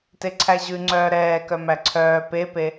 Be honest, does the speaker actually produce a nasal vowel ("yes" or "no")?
no